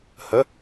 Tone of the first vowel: rising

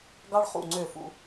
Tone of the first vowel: high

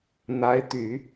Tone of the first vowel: rising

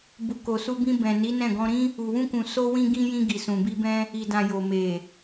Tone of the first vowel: low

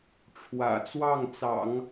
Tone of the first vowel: low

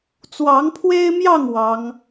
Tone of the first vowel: rising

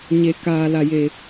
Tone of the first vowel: low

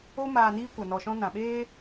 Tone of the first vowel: high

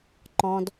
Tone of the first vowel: high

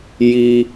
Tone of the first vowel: high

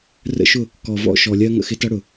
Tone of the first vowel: high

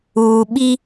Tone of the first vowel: low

